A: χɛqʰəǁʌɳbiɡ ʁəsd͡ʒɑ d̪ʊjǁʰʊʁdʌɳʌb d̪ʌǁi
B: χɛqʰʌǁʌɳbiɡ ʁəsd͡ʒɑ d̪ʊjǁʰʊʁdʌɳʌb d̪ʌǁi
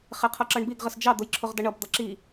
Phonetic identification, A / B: B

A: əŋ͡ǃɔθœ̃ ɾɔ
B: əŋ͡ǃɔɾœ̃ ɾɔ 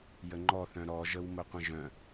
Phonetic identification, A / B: A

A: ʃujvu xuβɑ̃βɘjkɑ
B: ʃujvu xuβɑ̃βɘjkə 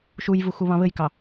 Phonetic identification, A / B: A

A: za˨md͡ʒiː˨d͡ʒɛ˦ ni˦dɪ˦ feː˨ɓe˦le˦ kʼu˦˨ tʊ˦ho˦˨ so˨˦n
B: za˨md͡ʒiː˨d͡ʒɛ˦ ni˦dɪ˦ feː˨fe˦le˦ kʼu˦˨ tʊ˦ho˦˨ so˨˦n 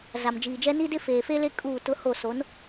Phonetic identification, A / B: B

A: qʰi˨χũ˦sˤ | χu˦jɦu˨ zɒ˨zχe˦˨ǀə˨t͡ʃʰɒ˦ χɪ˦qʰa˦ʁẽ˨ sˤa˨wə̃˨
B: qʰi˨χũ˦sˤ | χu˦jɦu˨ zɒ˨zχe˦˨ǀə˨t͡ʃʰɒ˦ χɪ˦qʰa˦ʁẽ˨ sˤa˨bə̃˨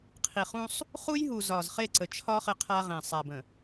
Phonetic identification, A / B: B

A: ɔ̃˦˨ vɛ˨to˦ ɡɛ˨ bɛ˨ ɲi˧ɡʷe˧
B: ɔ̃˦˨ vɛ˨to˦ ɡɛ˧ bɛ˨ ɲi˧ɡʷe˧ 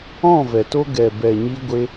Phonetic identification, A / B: A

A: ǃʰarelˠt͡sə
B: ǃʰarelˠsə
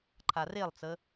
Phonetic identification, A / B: A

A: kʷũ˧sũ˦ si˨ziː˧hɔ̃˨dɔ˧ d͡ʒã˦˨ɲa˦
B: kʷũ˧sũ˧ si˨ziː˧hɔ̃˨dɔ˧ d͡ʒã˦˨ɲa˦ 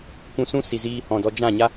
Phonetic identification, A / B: A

